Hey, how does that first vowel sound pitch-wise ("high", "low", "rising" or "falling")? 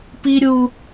high